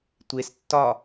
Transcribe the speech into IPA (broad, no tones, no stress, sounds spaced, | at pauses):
tʷ e s tː ɒ